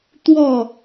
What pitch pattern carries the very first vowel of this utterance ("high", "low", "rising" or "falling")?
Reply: falling